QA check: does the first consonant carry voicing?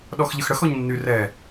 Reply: yes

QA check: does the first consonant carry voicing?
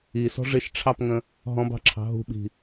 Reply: no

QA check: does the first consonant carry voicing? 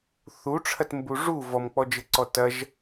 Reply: no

